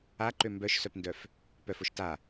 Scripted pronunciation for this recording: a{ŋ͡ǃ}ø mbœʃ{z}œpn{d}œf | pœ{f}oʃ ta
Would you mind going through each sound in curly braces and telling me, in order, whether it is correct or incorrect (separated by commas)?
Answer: incorrect, incorrect, correct, correct